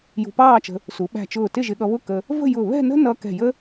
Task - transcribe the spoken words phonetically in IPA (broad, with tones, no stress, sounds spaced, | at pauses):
j ṳ˧ p ɑː˥˧ t͡ʃ ə̤˧ | s u˩˧ ɓ æ̤˧˩ t͡ʃ ʊː˧˩ t ɪ˥˧ ʒ ɪ˧ ɠ ʌ˧ β ʊ˥˧ k ə˧ | v ə̤˥˧ j ʊ˧˩ β ɛ̤˥˧ n ə̤˥ n ʌ˧ k ɛ̤˧˩ j ə˥